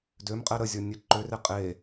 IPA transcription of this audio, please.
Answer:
d ø m qʼ ɛ ɾ ə zʲ ɔ nʲ ɛ ǃ ø r e qʼ e

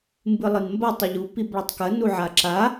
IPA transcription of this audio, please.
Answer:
m b ɨ lˠ ɨ n m b ɐ tˤ ɨ ʎ u p i b ɭ ɐ tˤ k ɐ n u ʕ a ǁ a

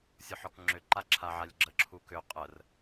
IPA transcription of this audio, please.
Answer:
sʲ ɔ ħ ɔ k ŋ͡ǁ ʏ ǃ a ǁʰ a ʕ a lʲ ɡ͡ǁ ə ǁʰ u k ʏ qʼ ə r

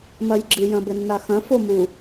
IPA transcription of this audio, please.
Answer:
m ɐ j ɡ͡ǁ ɨ j ɐ̃ b ɘ nː a x ɐ̃ f o m u

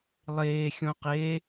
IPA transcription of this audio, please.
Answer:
lˠ eː xʲ õ q e

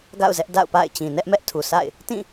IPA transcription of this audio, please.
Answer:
ɡ a̰˦˨ ʊ̯ z ɛ˦ ʔ d a̰˦˨ ʊ̯ p a̰˦˨ ɪ̯ t͡ɕ ĩ˨ n ɛ˦ ʔ m ɛ˦ ʔ tʰ u˨ sʰ a̰˦˨ ɪ̯ | t ĩ˦˨

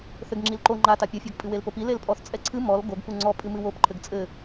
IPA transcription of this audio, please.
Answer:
θ ɘ ɡ ŋ͡ǁ i l ǃ o ŋ͡ǃ a t a pʲ ɐ fʲ ɔ ɡ pʼ ɨ w e l p o p i l e l pʼ ɔ θ t͡sʼ ɛ ǀʰ ɨ m ɔ l ɡ o ɡ p u ŋ͡ǀ ɔ pʼ ɨ m ɨ w o p ǃʰ ɘ ɡ t͡sʼ ɘ

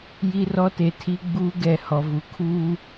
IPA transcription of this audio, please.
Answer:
j i˦ r ɔ˦ t e˨ tʰ i˦ ɡ͡b uː˦ ɡ ɛ˨ h ɔ˨ v u˨ kʰ uː˦

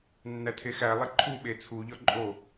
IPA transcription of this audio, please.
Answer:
nː æ tʰ e x æ lˠ e ǃʰ u ɓ e t͡sʰ u ʎ ɒ ǃʼ o

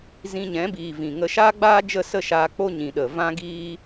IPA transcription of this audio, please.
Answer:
z ĩ˧ ɲ ɛ̃˨˦ b iː˨ v ĩ˨ ŋ ə˧ ʃ aː˦ ɡ͡b aː˦ d͡ʒ ə˦˨ s ə˦˨ ʃ aː˧ k͡p o˦ ɲ ĩ˨ ɗ ə˨ v ã˦ ɡ iː˦

